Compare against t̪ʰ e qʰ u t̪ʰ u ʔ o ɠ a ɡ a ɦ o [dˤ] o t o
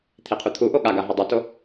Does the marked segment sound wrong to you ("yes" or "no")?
no